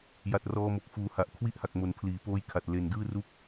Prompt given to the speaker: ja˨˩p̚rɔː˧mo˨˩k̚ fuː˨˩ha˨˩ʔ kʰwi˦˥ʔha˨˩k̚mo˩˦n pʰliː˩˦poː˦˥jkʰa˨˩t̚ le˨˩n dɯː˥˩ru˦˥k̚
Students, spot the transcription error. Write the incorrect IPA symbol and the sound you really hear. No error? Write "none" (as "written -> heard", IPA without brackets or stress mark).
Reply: p̚ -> t̚